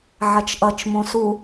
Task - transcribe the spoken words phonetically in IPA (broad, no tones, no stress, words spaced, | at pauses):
ʕɐt͡ʃʔʌt͡ʃmõ su